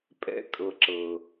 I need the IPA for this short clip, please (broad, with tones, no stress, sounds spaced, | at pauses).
pʼ ɛ̰˦ kʼ ɤ˨ ǁ ɤ˨